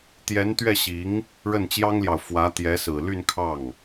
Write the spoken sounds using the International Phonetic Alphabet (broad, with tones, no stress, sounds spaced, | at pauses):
t̪ j ɛ˧˥ n t̪ ɥ ɛ˥˩ ɕ i˧˥ ŋ | ɻ ə˥˩ n t͡ɕ j ɑ˥ ŋ l j ɑ˨ ʊ̯ f w ä˧˥ t̪ j ɛ˧˥ s ɹ̩˨˩ l y˥˧ n kʰ ɑ˥˩ ŋ